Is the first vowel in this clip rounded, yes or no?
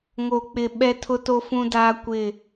yes